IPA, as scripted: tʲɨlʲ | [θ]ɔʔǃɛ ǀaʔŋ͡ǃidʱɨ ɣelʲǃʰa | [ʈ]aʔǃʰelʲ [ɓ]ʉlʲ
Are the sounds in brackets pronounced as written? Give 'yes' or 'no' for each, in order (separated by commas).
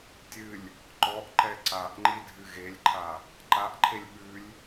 no, no, yes